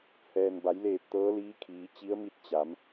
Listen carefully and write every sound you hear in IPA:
hɛː˩nba˩˧jleː˧˩p̚ t̪ɤː˧˥liː˧˥kʰiː˩˧ t͡ɕi˧˥ə̯mi˥˨t̚ t͡ɕa˩˧m

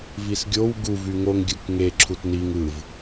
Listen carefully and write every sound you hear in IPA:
visɡʲow ɡu vyŋoŋ ɡʲɯkŋe ǁʰutniŋ ɯv

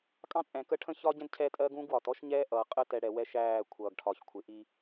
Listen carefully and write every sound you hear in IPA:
kʼɑ̃˦t͡sʼɛ̃˨kə˦ ʈʰə̃˦çɒ˦ɟɛ̃˦d cʰɛ˦tʼɜ˦ɡũ˦ɡwɒ˨t ɔ˦ʃɲɛː˦ʔʌː˨ qʼə˦ tɛ˨ ɽɛ˨wɛ˦ʃæː˦˨ kʷʰʌː˨ɡʈʰɒ˨ç kʷʰɪ˨ʔi˦

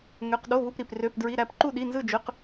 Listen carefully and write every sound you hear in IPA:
ŋø˧˥˧q ɗo˧˥˧βu˧˥˧p ɾi˧˥˧p rø˧˥˧pdɹi˧˥˧ɾæ˥˧p ǃu˥˧ɗi˧˥˧nzɯ˥˧d͡ʒø˧˥˧q

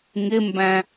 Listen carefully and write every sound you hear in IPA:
ŋɪmbæ̃

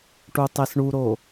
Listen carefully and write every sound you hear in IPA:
ʈutˤesɳuɾo

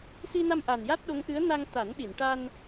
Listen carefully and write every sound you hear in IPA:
si˧na˧mʔa˨˩n ja˦˥t̚ɗo˧˥ŋʔɨ˧˥ə̯ na˧ŋt̪a˨˩˦n ɗi˨˩˨nʈa˧n

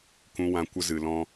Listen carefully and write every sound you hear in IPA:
kũ˧wã˧ kʷə˧ zɨ˨lɔ̃˦

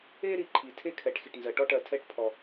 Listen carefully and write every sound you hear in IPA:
e˥ ɾi˨ǃʰi˩ tʰe˥kʰɛ˩ʈ xi˩ʈnzɜ˩ ʈɔ˥ʈɜ˨tʰɛ˦ʈ pʰɔ˩

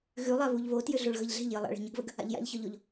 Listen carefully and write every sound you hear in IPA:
ɣʉlˠaβuʎ βotjʏɮoɭ ɣəʎɮe̤ʎ jəlˠa̰ ɭe̤ɲəɡβəɡ | a̰ʎja̰ʎçɒʎoʎ

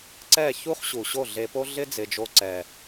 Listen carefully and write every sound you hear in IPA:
ǀɛ˦˨ çu˦χ ɕu˨ɕo˦˨ɮe˧po˦ ɮɪ˦d͡zɪ˨d͡ʒo˧ǀɛ˨

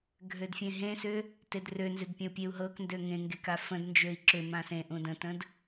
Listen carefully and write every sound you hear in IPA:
ɡʱødfʲẽɦẽsʏ | tedrønzʏd pʲə̃u̯pʲeu̯ɦɤkndø ŋẽŋɡek afə̃dnd͡ʒøi̯ ǁʏ mãsẽʔũ də̃tə̃d

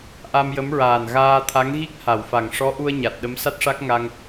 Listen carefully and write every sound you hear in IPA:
ʔa˧mjə˧˥m ɹaː˨˩nɣaː˧t̪ʰa˧˥ŋɣi˦˥k̚ ha˨˩˨wfa˨˩ŋ ʂɔ˧˥ʔu˧ə̯ ɲa˨˩t̚ ɗə˧˥msa˦˥t̚ʂa˦˥k̚ ŋa˧ŋ

